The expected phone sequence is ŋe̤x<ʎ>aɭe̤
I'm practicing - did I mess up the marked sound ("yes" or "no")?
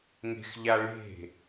no